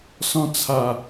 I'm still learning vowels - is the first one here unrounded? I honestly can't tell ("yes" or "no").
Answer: no